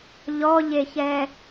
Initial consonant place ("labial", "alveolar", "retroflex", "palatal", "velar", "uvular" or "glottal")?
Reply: palatal